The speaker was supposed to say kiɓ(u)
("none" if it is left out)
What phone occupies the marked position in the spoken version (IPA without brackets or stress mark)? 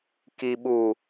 u